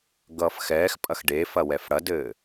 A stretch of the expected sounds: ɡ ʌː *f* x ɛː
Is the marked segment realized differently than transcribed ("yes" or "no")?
no